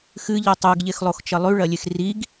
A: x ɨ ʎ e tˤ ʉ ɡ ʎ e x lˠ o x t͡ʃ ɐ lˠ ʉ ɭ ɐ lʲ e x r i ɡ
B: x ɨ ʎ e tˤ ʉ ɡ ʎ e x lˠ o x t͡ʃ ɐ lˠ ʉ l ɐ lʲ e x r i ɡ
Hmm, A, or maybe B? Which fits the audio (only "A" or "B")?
A